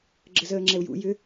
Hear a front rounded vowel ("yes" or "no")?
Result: yes